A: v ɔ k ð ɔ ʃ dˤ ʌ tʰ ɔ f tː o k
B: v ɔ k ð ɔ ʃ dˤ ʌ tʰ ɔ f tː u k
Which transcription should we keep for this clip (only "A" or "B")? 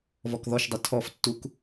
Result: B